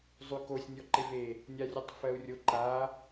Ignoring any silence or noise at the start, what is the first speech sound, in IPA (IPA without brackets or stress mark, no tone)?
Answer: zˤ